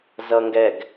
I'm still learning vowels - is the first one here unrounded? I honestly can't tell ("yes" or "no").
yes